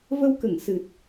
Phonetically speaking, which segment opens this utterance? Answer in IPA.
v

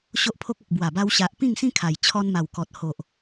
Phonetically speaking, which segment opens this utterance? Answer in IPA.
ɕ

